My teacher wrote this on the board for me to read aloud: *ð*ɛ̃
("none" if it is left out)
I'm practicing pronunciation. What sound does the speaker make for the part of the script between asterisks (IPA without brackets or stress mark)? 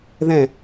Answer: ð